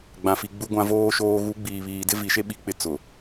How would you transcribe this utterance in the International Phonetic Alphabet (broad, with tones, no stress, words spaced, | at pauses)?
ɡ͡bã˨fi˨ ɡ͡bu˨ɡʷã˨ voː˨ʃoː˨ ɣu˨˦ɡ͡biː˨βiː˨dɪ˦ vi˨ʃe˦ ɓi˦k͡pɪ˦ t͡sʊ˨